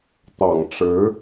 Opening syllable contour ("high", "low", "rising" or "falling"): low